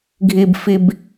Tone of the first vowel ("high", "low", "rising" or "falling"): low